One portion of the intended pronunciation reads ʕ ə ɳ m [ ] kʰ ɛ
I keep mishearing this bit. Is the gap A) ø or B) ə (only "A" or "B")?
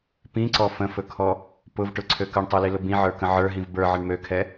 A